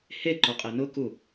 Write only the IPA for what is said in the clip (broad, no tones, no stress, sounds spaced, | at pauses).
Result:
h e ǃ o qʼ e n ʊ k u